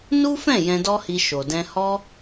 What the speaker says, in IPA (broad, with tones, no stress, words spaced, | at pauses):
nu˦fɛ̃˦˨ jɛ̃˧dɔ˦hi˧ ʃo˨dɛ̃˧ hɔ˧